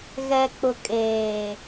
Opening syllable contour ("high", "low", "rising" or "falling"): low